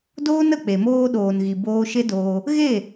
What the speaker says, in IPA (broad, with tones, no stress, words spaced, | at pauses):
doː˦nə˨ k͡pe˨moː˧ ɗoː˨nɣi˨ boː˧ʃe˦doː˧ | ɣe˦˨